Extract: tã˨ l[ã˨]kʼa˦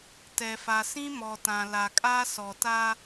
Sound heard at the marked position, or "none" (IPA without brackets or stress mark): a˨